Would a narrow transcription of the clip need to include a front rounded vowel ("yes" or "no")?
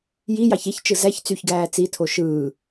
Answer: yes